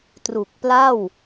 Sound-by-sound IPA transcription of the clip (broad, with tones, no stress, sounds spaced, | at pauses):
t r u˨˩ k̚ p l a˥˩ w